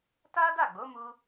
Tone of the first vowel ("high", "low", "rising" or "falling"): high